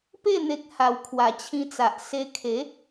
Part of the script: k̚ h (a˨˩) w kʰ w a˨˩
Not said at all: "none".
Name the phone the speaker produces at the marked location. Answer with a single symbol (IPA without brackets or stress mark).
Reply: a˨˩